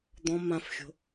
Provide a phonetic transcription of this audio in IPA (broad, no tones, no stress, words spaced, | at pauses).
d̪ɔ̃ mãfxʲo̤